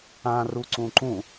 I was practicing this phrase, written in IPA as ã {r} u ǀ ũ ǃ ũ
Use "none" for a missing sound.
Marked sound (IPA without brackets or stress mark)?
r